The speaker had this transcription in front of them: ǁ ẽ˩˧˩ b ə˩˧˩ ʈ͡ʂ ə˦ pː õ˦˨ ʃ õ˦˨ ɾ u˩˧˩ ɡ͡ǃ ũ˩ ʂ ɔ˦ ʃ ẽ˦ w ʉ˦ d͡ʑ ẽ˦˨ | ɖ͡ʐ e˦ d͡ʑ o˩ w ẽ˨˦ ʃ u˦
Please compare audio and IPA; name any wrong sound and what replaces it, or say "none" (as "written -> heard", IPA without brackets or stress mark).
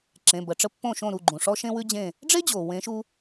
none